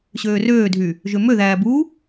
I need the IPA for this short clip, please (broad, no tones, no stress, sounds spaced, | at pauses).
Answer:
ɕ øː r øː dʱ y | ʒ ø m ø ð æː b u